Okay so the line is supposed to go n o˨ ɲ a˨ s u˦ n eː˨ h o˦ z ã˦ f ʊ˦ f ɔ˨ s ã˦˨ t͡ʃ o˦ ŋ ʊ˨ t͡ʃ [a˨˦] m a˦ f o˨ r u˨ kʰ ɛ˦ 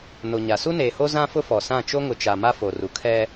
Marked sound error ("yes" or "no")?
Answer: yes